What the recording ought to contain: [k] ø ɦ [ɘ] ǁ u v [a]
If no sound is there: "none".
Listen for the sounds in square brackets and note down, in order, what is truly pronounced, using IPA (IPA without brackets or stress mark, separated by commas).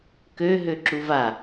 k, ø, a